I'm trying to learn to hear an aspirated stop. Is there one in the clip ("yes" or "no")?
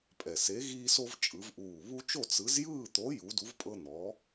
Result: no